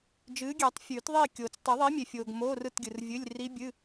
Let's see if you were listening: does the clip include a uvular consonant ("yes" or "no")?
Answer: no